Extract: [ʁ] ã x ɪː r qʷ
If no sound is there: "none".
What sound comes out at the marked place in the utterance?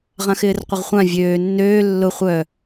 ʁ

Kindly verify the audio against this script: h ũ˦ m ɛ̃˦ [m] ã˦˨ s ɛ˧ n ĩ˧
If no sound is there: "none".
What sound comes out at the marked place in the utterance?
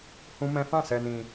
f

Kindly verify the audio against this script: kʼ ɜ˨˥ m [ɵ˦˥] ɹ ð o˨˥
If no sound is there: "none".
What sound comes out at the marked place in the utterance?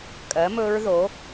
ɵ˦˥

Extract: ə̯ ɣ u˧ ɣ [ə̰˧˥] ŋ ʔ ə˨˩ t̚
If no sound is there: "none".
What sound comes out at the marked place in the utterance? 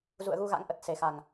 a̰˧˥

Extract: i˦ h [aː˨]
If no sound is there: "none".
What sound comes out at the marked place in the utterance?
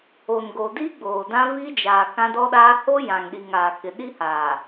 aː˨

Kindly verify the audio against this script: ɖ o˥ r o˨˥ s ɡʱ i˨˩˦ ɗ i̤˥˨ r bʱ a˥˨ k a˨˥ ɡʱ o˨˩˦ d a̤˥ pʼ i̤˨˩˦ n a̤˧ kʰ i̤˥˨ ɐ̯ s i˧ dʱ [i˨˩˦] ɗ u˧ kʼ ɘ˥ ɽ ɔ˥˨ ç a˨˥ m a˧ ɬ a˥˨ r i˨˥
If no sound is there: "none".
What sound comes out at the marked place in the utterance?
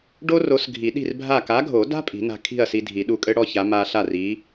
i˨˩˦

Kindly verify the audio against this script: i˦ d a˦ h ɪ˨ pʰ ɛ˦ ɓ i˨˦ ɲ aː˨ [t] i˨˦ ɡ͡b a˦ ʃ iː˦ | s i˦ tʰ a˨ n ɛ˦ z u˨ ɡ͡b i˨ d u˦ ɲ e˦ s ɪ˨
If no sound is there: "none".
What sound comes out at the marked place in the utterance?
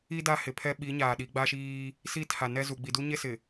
ɗ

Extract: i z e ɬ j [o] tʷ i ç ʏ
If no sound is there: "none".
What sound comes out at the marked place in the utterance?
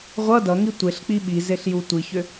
u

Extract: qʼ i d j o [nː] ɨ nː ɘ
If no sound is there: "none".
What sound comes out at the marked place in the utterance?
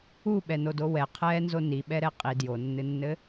nː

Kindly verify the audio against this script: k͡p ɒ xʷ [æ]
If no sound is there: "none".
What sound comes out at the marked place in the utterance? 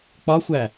æ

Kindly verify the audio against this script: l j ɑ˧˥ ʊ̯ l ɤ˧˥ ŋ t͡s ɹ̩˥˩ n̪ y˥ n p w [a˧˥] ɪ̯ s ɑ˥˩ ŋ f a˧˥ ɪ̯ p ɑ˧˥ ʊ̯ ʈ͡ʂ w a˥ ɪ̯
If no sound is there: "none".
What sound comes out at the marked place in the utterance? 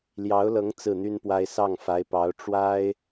a˥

